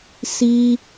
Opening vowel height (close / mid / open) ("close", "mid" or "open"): close